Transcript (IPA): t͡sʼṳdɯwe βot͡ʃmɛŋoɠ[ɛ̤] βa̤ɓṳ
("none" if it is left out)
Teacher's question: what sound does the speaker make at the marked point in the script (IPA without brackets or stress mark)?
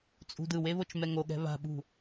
ɛ̤